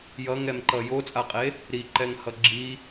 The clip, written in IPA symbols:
j ʌ ŋ ɛ m ǃ ʌ j o t͡sʼ a qʼ e | ɾ i ǃ ɛ ŋ h ʌ ɡ͡ǁ i

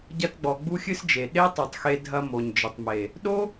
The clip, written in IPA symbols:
ɟ ɐ˧ t ɡ͡b ɔ˨ ɡ͡b u˦ xʲ ɨ˦ s d͡ʒ e˨ ɗ e˦ tˤ o˨ tˤ x e˧ dʱ ɐ˧ m o˨ ɲ d͡ʒ ɘ˨ tˤ m e˨ | ɗ o˦

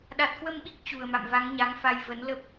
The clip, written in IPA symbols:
ɗ a˨˩ t̚ k w ə˧ m ɓ i˦˥ k̚ t͡ɕ u˨˩ ə̯ m a̰˧˨ m v a˨˦ ŋ ɲ a˨˦ ŋ f a˧ j v ə˨˦ n l ə˦˥ p̚

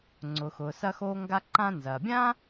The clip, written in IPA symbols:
ŋ͡ǀ ʊ˩ x ʊː˩ s ɐ˧ x oː˧ ŋ ɡ a˧ ǃ ã˧ n z ɐː˩ bʲ ã˥

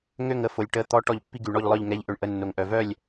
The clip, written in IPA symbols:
ŋ ø˥˨ ŋ ə˧ f o˩ lʲ ʈ ə˩˧˩ t̪ ɔ˧˥ ʈ ɔ˧ ʎ pː i˧ ɡ y˩ ɳ ɔ˥˨ ʎ lˠ œ˥˨ ʎ ŋ ɛ˧˥ ʎ ʔ ø˩ ɳ ʔ ə˩˧˩ nː o˩ ŋ ʔ œ˩ v œ˥˨ lʲ

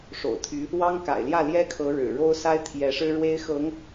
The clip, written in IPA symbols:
ʂ o̰˨˩ ʊ̯ t̪ʰ y˧˥ | w ɑ˥ ŋ k a̰˨˩ ɪ̯ l j ä˥˩ l j ɛ˥ kʰ ɤ˧˥ ɻ ɻ̩˨˩ ɻ o˥ ʊ̯ s a˥ ɪ̯ t̪ʰ j ɛ˧˥ ʂ ɻ̩˥ ɻ w e˥ ɪ̯ x ɤ˧˥ ŋ

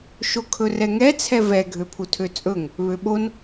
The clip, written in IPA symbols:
ʃ o kʰ ɵ r ɛ ŋ ɛ t͡sʰ ɛ v ɛ ɡʱ ø pʰ u tʰ ø t͡sʼ ɵ ŋ | β ø ɓ o n

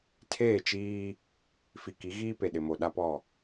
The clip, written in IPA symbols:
tʰ eː˦˨ t͡ʃ iː˦ | f i˨ k i˨˦ ɣ iː˦ p e˨ ɗ ɪ˨ m o˨ ɗ a˦ p ɔ˦˨

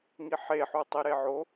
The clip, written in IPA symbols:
ŋ i ħ e ħ u tˤ i ɾ e ʕ o

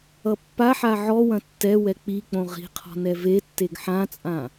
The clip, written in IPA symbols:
ʌ pː a ħ a ʕ ɔ w ɐ̃ tː ɛ w ɛ k͡p i k͡p õ ʁ i̤ qʰ ɔ̤ n ɛ v e tː e ɡ ħ ã t͡sʼ ã

